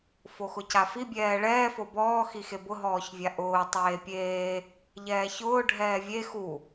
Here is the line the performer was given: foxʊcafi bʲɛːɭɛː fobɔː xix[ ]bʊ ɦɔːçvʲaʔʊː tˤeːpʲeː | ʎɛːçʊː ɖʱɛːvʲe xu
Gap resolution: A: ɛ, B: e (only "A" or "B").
B